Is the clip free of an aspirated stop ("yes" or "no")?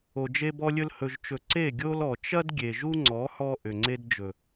yes